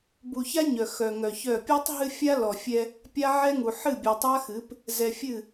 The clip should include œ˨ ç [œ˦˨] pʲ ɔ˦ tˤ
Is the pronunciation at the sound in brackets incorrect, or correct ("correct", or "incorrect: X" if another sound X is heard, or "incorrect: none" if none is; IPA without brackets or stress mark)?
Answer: correct